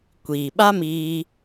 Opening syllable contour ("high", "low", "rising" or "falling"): low